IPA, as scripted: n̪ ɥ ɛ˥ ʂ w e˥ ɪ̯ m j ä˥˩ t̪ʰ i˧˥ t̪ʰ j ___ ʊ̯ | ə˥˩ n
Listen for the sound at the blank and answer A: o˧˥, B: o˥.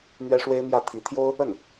B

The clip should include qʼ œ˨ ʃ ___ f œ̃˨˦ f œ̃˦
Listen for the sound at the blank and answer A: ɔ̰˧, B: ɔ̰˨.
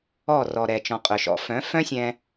A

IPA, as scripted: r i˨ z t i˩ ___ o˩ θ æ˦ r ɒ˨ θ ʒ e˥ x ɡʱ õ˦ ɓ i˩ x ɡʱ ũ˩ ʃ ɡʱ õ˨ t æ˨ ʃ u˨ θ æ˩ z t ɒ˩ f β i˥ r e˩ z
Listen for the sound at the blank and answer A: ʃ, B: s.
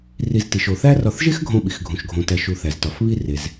A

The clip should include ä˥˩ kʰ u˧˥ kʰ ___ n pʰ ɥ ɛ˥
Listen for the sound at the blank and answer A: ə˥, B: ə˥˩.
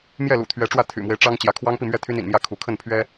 B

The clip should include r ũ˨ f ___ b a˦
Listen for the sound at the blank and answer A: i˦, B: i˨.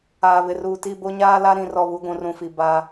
B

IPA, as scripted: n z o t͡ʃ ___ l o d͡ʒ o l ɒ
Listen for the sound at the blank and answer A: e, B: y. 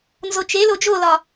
A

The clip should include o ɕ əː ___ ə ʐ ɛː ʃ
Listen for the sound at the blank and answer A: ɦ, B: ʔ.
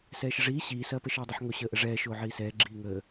B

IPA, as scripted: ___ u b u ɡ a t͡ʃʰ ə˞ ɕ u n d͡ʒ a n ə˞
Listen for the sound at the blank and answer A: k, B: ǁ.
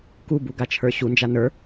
A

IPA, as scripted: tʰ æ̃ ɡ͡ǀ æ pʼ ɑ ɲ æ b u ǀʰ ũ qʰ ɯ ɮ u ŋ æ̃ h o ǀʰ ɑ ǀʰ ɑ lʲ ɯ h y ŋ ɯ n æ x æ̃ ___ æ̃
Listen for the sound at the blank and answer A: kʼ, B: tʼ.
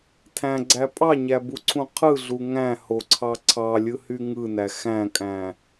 A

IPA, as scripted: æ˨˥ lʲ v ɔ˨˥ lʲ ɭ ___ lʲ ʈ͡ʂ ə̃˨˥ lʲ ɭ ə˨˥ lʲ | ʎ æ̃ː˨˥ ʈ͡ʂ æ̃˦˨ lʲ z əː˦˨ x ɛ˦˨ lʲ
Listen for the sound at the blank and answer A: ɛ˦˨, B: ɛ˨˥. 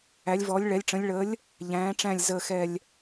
B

